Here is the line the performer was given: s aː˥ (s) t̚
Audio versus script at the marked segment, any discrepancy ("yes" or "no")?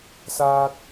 yes